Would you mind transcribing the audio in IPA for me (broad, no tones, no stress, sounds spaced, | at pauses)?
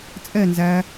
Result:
t͡sʼ ɛ n z æ